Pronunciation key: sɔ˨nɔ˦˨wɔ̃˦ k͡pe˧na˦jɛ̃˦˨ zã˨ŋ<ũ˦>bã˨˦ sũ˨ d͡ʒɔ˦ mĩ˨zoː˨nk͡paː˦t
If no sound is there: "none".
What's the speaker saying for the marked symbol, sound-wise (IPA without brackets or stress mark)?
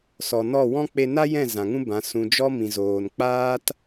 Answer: ũ˦